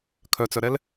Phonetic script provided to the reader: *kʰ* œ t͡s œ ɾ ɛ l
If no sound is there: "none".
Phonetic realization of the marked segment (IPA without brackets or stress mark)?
kʰ